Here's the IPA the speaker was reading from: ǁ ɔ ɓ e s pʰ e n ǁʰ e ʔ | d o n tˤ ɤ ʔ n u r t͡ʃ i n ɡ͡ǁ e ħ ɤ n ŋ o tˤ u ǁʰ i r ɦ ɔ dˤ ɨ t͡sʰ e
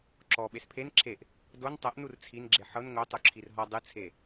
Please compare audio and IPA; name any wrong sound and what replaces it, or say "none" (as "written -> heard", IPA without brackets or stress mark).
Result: t͡ʃ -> t͡sʰ